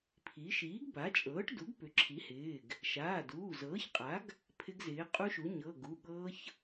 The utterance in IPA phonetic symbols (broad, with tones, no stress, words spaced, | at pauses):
pʰi˩˥ ʃiː˩˥ɡba˩˥t͡ʃʼɤː˩˥ʈ du˩˥ɡpʏ˩˥ǁʰi˩˥hɪː˩˧˩ɡ | ʃaː˩˧˩duː˩˧˩ zɤː˩˥çqʼa˩˥ɡ | pʰɪ˦˥ɡzɪː˩˥ qʼu˦˥ʃu˩˥ ɲɤ˩˧˩ ɡu˩˧˩ɠɤː˦˥ç